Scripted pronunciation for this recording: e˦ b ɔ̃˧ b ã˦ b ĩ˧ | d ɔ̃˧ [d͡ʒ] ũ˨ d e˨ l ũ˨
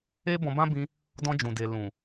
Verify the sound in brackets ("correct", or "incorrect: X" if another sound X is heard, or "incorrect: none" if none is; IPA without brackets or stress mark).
correct